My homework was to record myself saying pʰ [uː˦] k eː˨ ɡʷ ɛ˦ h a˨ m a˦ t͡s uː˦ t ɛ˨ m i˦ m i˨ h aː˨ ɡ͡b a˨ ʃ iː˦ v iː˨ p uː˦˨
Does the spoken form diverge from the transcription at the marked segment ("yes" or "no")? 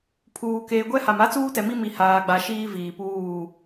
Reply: yes